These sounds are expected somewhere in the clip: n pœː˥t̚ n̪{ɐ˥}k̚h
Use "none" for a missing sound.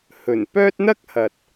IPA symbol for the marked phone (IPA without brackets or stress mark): ɐ˥